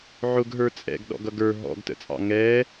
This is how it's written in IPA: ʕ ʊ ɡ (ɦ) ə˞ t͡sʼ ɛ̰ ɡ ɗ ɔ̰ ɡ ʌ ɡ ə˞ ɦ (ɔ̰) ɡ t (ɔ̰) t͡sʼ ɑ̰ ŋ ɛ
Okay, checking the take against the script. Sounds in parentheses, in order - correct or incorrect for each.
correct, correct, incorrect: ə̰

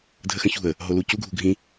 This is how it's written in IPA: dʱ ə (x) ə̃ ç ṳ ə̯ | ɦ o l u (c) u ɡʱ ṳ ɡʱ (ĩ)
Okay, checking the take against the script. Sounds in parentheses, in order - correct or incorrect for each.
correct, correct, correct

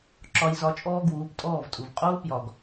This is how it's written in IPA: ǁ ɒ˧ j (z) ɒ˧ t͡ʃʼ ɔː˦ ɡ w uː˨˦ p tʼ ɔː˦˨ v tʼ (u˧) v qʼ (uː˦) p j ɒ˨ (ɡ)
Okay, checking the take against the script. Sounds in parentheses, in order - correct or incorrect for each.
correct, incorrect: u˨, correct, correct

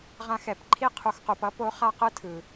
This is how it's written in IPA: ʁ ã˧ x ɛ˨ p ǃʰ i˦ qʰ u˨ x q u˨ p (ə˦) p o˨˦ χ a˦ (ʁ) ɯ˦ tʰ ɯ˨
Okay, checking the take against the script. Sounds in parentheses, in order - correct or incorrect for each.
incorrect: ʌ˦, incorrect: q

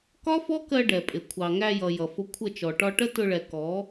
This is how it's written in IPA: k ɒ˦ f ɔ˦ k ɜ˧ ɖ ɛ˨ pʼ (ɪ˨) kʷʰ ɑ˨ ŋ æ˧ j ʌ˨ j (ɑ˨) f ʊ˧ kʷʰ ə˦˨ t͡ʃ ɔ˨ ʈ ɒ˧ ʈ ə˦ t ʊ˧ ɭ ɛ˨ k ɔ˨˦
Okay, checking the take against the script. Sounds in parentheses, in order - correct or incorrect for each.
correct, incorrect: ʌ˨

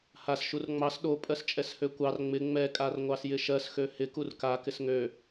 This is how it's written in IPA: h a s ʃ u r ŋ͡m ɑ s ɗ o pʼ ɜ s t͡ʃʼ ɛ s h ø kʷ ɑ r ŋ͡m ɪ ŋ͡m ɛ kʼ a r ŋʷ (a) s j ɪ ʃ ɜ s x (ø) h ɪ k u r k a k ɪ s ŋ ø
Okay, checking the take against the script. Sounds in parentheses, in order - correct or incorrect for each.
incorrect: ɑ, correct

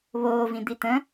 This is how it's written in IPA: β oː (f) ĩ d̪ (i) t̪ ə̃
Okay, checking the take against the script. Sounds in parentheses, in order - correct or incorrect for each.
incorrect: v, correct

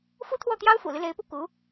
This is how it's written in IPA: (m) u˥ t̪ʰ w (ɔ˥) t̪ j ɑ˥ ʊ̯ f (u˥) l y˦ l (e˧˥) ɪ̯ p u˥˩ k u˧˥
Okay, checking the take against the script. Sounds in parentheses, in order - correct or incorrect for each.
incorrect: f, incorrect: ɔ˥˩, incorrect: ṵ˨˩, correct

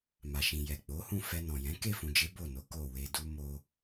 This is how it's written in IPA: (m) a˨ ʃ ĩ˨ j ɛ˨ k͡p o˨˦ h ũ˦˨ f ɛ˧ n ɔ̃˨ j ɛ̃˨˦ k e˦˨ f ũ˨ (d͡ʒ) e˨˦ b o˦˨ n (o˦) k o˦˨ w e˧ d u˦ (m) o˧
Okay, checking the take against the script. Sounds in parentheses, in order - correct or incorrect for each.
correct, correct, incorrect: o˨˦, correct

